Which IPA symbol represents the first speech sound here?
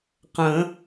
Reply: q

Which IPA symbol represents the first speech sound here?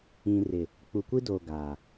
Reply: ĩ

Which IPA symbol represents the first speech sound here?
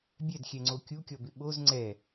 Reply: bʲ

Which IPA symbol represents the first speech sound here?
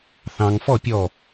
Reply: θ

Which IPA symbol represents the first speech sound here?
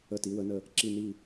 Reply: ə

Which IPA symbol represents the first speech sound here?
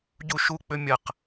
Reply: ɟ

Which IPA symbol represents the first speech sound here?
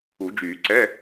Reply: u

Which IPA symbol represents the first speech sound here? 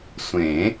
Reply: sʷ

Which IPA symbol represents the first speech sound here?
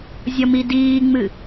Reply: zʲ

